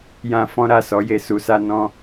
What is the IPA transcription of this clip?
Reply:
j ã˧ f ɔ̃˧ ɾ a˨ s ɔ˨˦ j e˧ s u˧ s a˦ n ɔ̃˦

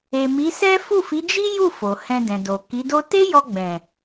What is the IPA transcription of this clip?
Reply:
e˨ m i˨˦ s ɛ˦ f u˦˨ f i˨˦ d͡ʒ i˦ j u˦˨ f o˨ h ɛ̃˧ d ɛ̃˨ d o˨ k i˨˦ d o˦ t e˦ j ɔ˧ ɡ͡b ɛ̃˨

